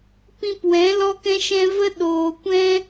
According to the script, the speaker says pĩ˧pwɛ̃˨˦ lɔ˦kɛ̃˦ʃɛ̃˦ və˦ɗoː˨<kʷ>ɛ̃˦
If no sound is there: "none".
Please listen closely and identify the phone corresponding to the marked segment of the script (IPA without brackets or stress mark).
kʷ